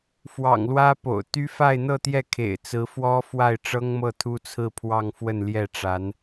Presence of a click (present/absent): absent